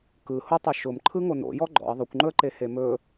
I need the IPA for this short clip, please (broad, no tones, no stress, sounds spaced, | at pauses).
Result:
k ɯ h ʊ tˤ u ʃ ʊ m ǃʰ ɯ ŋ o n o̰ j ɔ ɡ͡ǃ ɔ̰ ə̯ ðˤ ɵ kʷ ŋ͡ǃ ɵ ə̯ ǃ e h e m ɵ